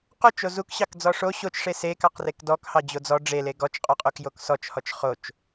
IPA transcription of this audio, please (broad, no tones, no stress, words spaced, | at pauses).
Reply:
qot͡ʃo zukɕɑkd͡zɔ ʂo ɕot͡ʃʂe se kɑqrekdɔk hɑd͡ʑod͡zɔ ɖ͡ʐele ɡɔt͡ʃqʼɔqʼok joksɔt͡ʃhɔt͡ʃ χot͡ʃ